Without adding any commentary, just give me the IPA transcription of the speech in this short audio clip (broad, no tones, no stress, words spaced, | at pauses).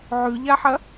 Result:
ʕʉʎaħɐ